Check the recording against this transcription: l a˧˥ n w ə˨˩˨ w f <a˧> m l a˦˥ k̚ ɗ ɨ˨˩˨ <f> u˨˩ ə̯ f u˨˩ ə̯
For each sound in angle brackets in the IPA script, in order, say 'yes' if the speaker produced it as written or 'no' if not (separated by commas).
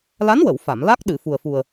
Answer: no, yes